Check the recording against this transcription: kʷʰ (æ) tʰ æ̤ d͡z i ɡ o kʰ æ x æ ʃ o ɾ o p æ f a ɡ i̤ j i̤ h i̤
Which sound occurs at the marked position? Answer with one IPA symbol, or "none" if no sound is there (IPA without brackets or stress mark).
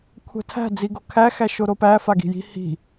æ̤